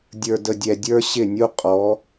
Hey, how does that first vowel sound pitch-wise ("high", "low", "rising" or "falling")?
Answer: low